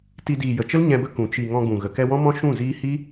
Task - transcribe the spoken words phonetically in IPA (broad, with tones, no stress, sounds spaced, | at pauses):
t i˧ d iː˨ j ə˨ t͡ʃ ə˦ l ɲ ɛ̃˧ b ə˦ k ũ˨ t͡ʃ i˨ ŋ ɔ̃˧ ɡ͡b ũ˨ ɣ ə˨ k ɛ˧ w ɔ̃˦ m ɔ̃˦ ʃ ũ˦˨ z iː˦ h i˦